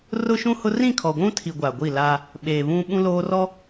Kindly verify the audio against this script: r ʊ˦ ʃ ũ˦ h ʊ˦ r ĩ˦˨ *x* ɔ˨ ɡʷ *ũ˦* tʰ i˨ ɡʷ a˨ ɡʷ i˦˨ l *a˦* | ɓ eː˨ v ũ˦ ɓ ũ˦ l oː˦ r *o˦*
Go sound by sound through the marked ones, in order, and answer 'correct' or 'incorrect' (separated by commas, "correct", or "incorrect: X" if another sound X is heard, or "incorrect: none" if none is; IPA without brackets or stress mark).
incorrect: kʰ, correct, correct, incorrect: ɔ˦